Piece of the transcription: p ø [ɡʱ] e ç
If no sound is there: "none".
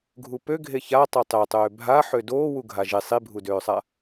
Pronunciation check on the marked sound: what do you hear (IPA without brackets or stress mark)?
ɡʱ